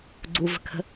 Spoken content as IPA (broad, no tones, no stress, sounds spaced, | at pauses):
ɡ͡ǀ u v ə̤ kʰ ə̤